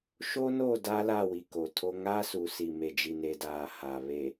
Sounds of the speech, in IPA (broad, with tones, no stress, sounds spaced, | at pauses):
ʃ o˦ n o˦˨ d a˦ l a˦˨ w i˨ k o˨ tʰ o˦ ŋ a˦ s u˨ s i˨ m e˨ d͡ʒ i˨ n e˨ d aː˨ h a˨ β e˨